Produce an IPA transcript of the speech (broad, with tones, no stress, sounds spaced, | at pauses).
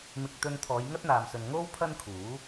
m ɪ˧ k̚ t̪ ɵ˧ n t̪ʰ ɔː˨˧ j ŋ ɐ˥ t̚ n̪ aː˨ m s ɵ˨ n ŋ o˥ w pʰ ɐ˥ n kʰ uː˨˥